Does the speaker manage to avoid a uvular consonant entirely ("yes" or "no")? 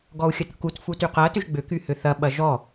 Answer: no